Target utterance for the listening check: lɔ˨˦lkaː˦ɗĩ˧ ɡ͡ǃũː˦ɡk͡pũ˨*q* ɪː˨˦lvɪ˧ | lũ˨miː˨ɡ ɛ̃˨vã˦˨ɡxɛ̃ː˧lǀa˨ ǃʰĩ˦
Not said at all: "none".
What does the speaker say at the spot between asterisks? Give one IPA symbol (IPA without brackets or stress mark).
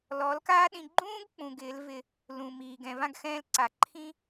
ɡ